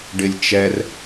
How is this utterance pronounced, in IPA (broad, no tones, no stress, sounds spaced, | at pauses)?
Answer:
ɖ ɪ lʲ t͡ʃ ɛ r